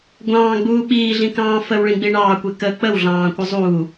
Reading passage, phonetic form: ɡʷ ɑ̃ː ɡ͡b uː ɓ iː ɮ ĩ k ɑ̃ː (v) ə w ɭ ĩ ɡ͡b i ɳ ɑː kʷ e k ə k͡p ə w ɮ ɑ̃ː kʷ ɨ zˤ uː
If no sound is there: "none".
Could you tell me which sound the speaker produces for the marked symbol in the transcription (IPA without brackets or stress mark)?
f